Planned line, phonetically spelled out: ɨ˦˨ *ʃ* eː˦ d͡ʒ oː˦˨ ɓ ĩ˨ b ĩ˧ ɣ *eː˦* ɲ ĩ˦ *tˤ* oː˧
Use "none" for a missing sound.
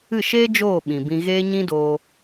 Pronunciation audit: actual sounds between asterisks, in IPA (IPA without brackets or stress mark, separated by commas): ʃ, eː˦, d